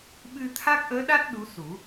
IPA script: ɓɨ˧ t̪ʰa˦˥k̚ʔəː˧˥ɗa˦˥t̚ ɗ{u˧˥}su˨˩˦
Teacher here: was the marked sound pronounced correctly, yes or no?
yes